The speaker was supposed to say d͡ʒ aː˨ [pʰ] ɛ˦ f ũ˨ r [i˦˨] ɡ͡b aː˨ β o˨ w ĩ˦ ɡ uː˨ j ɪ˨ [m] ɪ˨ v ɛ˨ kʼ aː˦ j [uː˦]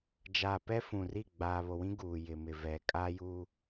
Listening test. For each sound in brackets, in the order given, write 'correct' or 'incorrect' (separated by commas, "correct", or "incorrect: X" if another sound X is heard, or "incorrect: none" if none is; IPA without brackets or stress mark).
incorrect: p, correct, correct, correct